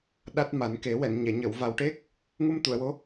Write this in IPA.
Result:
ɗa˦˥t̚ma˨˩˦nke˨˩˦ wɛ˨˩˨nɲɛ˨˩˨ɲə˨˩˨w va˨˩wʈe˦˥k̚ | ŋu˧mt̪u˨˩˨ə̯wo˧˥

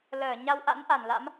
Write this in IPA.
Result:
ləː˧˩ɲa˧wʔa̰˧˥n ʔa˧˩nla̰˧˥m

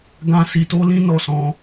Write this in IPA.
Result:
ɡã˦ si˧to˦ lĩ˦nɔ˦˨sɔ̃˧

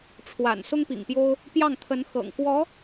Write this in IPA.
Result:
ʈ͡ʂʰwa̰˨˩n sʊ˥ŋpḭ˨˩ŋpjo˥ʊ̯ | pjɑ˥˩ŋt̪ʰə˧˥nxɤ̰˨˩ŋ kwɔ˧˥

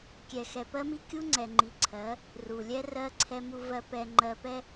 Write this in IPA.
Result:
kʲɛ˨xɛ˨pɜ˦mi˦ kʲu˦ ŋ͡ǀɛ˨ŋ͡ǃi˨ ǀʰɜ˨˦ | ru˨lʲɛ˦rɜ˦ ǀʰɛ˦mu˦vɜ˦ pɛ˨ŋ͡ǃɜ˨ pɛ˦

